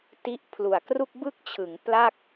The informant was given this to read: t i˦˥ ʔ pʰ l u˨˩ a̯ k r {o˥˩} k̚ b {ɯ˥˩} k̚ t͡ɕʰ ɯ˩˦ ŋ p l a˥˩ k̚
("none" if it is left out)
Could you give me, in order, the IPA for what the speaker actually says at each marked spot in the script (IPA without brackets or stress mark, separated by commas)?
u˥˩, ɯ˥˩